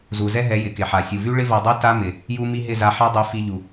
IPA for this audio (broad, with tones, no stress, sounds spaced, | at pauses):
z u˨ z ɛ˦ ɦ ɛ˨˦ j ɪ˨ k ɪ˨ ħ a˨ sʲ u˨ v y˦ ɭ ɪ˦ v a˧ dˤ y˦ t a˦ m ɪ˨ | j u˧ m i˧ ɦ ɪ˦˨ z a˧ ħ a˦ dˤ y˨˦ f i˧ ʎ u˨